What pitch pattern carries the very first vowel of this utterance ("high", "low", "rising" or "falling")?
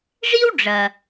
high